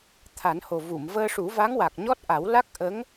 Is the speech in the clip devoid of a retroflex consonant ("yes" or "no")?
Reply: no